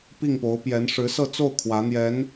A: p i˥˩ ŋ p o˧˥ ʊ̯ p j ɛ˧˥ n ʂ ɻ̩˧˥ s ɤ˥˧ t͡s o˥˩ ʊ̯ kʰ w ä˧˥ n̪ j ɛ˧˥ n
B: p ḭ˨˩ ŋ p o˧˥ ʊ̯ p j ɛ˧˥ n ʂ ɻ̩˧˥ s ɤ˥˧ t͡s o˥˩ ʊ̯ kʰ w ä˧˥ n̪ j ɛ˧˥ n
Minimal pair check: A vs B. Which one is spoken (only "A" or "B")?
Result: A